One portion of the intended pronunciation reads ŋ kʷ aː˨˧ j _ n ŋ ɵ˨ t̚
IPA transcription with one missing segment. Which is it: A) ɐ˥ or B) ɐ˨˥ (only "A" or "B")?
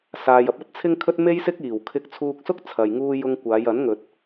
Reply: B